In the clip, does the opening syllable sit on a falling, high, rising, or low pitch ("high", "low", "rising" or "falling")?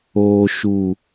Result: low